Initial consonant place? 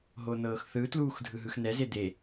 glottal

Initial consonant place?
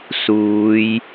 alveolar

